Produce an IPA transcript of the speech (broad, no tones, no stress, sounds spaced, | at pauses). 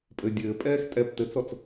pʼ ɘ dʲ ɘː pʼ ɛː x tʼ ɛ p t ɘ t͡s ɔ t͡s